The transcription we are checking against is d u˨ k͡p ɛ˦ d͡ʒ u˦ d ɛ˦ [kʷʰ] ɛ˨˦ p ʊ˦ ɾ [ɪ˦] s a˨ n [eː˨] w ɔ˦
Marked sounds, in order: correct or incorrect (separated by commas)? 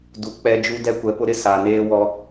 incorrect, correct, incorrect